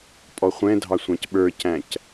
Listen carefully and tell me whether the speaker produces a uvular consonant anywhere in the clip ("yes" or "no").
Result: yes